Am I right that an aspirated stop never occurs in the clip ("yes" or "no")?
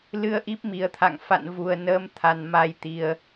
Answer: no